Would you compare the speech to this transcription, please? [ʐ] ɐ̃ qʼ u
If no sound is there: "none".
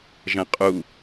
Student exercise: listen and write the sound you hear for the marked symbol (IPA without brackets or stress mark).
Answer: ʒ